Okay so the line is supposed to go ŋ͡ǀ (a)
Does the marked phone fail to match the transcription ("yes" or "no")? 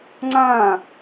yes